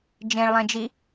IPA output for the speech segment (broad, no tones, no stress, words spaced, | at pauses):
d͡ʒẽɭlˠẽd͡ʒi